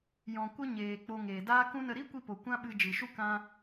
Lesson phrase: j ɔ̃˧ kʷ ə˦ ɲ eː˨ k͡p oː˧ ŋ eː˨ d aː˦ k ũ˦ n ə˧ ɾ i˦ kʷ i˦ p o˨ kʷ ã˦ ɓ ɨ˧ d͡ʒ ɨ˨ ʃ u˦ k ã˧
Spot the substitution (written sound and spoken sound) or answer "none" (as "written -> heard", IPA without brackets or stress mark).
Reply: oː˧ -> o˧